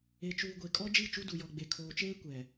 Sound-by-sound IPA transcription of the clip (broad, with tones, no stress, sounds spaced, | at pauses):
e˨ t͡ʃ uː˨ ɡʷ e˨ kʼ ɔ˦ d͡ʒ i˦˨ t͡ʃ u˦ d u˨ j ɔ˨ ɡ͡b e˨ kʰ oː˨ t͡ʃ eː˦ kʷ ɛ˨